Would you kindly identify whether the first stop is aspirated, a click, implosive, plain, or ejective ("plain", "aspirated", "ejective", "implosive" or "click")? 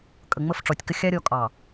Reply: ejective